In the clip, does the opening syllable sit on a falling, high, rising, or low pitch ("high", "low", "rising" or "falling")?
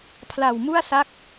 low